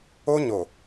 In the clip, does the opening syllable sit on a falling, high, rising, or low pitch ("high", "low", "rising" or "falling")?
high